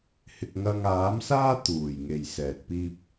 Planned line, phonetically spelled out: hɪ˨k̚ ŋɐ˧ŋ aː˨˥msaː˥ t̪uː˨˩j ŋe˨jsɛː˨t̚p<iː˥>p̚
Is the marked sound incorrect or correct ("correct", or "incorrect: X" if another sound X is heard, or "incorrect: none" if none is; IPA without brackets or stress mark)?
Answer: correct